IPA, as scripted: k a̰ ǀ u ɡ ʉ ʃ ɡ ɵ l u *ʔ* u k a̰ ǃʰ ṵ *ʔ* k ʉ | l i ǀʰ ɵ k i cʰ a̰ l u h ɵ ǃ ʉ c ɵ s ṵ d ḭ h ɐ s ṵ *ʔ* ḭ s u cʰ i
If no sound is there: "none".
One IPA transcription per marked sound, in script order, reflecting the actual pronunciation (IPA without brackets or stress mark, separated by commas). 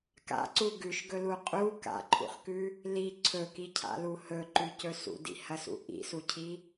qʼ, χ, ʔ